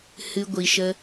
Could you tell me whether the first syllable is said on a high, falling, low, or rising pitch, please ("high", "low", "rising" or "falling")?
high